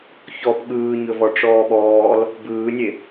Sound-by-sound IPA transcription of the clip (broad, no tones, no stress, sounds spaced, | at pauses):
ç ɔ p ɠ ɯː ɲ ɵ v ɔ ʈ͡ʂ ɔː ɓ ɔː l | b ɯː nʲ e